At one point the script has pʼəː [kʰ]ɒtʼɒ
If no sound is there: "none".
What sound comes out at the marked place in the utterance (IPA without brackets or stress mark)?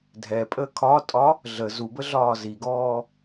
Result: kʰ